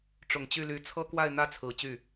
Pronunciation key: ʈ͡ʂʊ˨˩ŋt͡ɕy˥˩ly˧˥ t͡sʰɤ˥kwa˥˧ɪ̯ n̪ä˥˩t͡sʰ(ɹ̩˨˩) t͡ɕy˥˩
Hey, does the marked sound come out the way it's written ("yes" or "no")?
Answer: yes